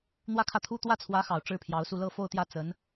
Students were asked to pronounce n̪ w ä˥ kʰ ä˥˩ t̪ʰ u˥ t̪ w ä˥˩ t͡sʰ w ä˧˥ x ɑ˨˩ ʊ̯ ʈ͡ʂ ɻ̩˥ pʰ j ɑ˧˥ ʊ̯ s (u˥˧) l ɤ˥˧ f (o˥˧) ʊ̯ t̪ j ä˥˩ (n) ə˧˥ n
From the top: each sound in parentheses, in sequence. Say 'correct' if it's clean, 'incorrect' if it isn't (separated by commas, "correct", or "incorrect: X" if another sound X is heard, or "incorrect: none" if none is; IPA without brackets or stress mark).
correct, correct, incorrect: t͡s